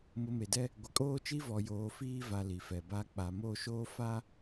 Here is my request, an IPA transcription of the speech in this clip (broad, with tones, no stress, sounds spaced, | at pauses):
m ʊ˨ m e˨ d ɛ˦ | ɡʷ ɪ˨ kʼ oː˦ t͡ʃ i˦ v ɔ˨ j oː˨ f iː˦ v a˨ l i˨ f ɛ˨ b a˦ k͡p a˨ m o˦˨ ʃ oː˦ f a˦